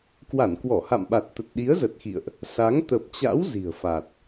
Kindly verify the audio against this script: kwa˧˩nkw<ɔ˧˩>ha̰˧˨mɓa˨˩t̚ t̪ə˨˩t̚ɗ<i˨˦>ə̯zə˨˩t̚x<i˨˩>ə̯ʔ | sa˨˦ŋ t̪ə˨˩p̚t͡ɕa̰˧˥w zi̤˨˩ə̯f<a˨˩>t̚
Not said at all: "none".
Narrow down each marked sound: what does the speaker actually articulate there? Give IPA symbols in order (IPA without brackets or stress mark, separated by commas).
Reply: ɔ˧˩, i˨˦, ḭ˧˨, a˨˩